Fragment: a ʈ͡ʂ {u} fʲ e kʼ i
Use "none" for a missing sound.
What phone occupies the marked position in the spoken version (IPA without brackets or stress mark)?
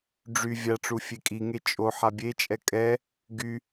u